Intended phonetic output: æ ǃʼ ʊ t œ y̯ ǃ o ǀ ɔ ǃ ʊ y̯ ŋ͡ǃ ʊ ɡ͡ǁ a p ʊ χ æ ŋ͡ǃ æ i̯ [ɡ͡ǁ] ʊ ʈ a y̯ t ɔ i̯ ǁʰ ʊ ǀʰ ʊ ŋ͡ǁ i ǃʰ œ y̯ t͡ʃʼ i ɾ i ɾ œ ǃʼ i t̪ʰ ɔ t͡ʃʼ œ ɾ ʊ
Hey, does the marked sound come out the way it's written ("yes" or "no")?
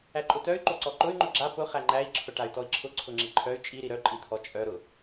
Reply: no